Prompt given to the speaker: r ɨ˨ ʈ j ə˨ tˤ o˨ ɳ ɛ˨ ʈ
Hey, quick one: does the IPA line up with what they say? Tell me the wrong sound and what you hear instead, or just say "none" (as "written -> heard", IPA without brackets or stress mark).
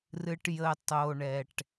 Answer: none